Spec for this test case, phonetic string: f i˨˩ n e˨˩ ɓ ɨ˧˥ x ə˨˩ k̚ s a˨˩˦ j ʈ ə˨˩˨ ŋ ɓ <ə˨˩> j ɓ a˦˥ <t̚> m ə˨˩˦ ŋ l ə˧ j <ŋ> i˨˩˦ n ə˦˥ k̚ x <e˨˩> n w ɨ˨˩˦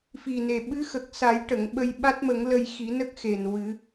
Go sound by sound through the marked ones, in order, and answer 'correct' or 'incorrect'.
incorrect: ə˧, correct, incorrect: x, correct

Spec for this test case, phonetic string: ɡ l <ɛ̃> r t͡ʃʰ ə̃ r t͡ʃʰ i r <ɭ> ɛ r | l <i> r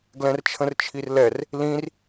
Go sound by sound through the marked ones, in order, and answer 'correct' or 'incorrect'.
correct, incorrect: l, incorrect: ĩ

